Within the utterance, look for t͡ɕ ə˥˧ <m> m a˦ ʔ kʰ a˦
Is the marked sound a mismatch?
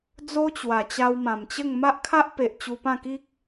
yes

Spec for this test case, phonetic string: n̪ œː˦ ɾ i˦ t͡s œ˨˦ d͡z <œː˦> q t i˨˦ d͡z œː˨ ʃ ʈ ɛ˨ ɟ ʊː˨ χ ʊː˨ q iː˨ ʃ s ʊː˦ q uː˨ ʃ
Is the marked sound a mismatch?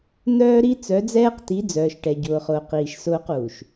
yes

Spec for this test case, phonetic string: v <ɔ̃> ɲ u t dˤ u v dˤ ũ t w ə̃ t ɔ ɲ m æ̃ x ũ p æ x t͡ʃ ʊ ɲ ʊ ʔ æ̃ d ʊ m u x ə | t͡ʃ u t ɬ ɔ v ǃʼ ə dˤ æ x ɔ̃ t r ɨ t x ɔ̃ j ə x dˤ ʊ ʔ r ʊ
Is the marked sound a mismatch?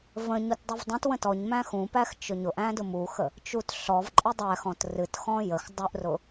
yes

